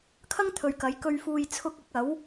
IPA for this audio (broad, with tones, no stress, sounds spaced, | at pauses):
kʰ ɐ˥ ŋ t̪ʰ ɵ˨ ɥ k ɐ˨˧ j k ɵ˧ ɥ f uː˧ j t͡sʰ ʊ˧ k̚ ɐ˨˥ k̚ ɐ˨˥ w